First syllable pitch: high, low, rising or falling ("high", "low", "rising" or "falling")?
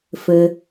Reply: low